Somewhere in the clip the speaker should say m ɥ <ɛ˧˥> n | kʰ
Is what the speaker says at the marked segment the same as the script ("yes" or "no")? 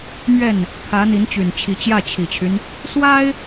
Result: no